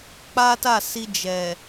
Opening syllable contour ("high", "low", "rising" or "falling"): high